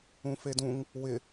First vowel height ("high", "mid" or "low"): high